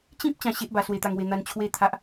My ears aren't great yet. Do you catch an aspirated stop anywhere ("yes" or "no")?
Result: yes